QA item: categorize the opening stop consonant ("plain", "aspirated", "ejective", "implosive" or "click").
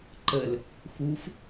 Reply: click